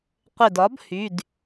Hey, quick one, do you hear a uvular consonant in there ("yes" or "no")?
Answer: yes